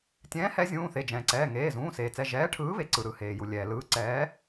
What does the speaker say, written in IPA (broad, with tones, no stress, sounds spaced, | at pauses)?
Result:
tʲ ɛ̃ː˨˥ h ɛ˨˥ zʲ ũː˩˧˩ θ e˩˧˩ d͡ʒ ɛ̃ː˩ ǀ ɛː˩˧˩ ŋ eː˩˧˩ z ũː˩˧˩ s eː˩ t͡s ɛ˩˧˩ ʒ ɛː˨˥ ʈʰ ɯː˨˥ β e˩ ǀ ɯ˩ ɾ ɯ˩ h eː˩ j u˩ lʲ ɛː˩ l ɯː˨˥ ǀ ɛː˨˥